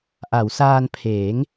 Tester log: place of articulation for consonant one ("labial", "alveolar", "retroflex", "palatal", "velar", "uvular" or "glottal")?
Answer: glottal